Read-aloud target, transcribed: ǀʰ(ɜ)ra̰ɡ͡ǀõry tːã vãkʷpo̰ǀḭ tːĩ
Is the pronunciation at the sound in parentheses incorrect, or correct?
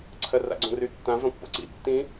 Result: correct